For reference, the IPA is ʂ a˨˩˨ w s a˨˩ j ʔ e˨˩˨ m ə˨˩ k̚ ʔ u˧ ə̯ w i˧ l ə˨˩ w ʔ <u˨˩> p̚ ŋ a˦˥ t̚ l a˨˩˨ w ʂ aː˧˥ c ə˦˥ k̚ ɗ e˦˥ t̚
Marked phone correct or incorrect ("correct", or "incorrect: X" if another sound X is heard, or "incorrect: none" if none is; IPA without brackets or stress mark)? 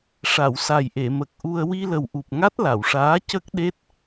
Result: correct